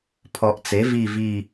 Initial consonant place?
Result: labial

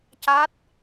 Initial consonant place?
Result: palatal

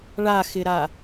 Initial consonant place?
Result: retroflex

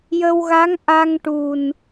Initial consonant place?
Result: palatal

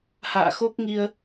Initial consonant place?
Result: glottal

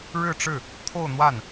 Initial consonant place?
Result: retroflex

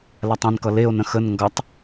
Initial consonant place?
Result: alveolar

